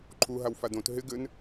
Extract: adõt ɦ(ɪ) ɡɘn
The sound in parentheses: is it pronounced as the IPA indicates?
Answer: yes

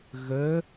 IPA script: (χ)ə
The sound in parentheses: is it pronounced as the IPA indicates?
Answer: no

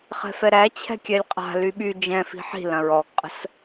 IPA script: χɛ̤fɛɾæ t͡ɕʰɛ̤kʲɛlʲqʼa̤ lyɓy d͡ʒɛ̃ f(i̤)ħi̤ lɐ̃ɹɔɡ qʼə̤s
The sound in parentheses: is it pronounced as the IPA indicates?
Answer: yes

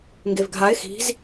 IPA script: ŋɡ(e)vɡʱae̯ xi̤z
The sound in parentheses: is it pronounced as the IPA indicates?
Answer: yes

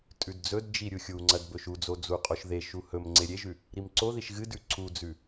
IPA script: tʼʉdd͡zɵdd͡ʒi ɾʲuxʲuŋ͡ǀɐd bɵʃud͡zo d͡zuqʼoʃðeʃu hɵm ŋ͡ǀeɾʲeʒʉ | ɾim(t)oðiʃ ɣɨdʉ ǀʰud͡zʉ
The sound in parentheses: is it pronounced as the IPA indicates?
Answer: no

